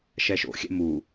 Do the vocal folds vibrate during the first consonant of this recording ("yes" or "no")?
no